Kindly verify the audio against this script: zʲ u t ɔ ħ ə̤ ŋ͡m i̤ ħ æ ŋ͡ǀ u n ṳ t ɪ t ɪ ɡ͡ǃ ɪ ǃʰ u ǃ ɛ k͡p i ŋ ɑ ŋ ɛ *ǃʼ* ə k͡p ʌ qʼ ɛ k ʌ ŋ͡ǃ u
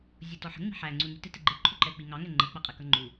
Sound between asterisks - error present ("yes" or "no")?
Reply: yes